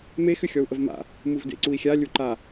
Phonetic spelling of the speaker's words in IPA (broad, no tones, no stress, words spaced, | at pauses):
me xʏxʲɔu̯ʔəvma̰ | muvdḛǀui̯xʲa lʲuǃa